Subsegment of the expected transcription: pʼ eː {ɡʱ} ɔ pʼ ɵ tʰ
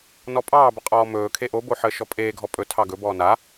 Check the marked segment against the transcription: correct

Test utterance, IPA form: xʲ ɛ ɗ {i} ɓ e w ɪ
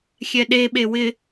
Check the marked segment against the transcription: incorrect: e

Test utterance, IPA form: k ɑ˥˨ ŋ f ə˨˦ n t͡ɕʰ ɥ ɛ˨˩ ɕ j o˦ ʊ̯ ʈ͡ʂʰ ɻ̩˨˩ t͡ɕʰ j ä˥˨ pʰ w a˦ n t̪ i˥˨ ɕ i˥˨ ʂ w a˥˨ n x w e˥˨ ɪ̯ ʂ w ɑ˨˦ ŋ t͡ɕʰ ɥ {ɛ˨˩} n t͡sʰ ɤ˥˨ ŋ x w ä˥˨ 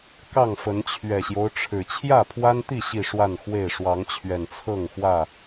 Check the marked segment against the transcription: correct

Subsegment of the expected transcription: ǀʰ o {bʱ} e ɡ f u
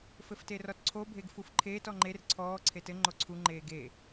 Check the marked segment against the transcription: correct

